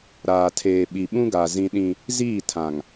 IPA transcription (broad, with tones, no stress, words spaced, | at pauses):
ɾaː˨tʰeː˨ ɓi˨ɓũ˦ɡa˨ zĩ˦ɗĩ˦ | ziː˦˨tʰã˨ŋ